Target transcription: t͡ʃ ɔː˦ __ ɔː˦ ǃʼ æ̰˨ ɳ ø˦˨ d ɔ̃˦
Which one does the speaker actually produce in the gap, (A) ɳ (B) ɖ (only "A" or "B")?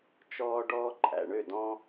B